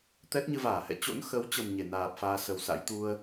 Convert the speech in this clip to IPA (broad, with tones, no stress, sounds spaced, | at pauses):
t̪ ɛ˦˥ t̚ ɲ ɨ˧ v aː˧˩ h ɛ̰˧˨ t͡ɕ o̰˧˥ n x ə˨˦ w t͡ɕ ə˨˩ m ɲ e˧˩ n aː˨˩ p̚ f aː˧ s ə˨˩ w s a̰˧˥ j t̪ u˧ ə̯